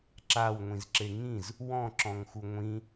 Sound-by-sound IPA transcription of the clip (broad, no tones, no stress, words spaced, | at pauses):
ǁawŋʷĩzǁe ŋĩz | wɔ̃ǁɔ̃ŋxu ŋʷĩ